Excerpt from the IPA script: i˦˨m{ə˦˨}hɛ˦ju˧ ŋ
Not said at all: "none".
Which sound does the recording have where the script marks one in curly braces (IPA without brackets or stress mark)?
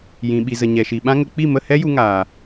ə˦˨